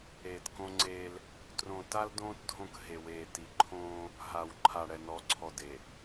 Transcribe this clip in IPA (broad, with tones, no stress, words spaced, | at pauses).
eː˨tkõ˦ŋ͡ǀeː˦l | trõ˨ta˦ldõː˦t dʱõ˦˨kɦe˨weː˨ ti˨ǃʰõː˦ | ɦa˨wǃʰa˨ ɽɛ˨nɔ˨˦ǀʰɔ˨ de˨